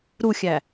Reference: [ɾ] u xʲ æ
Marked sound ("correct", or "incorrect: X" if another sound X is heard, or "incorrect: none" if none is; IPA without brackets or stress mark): correct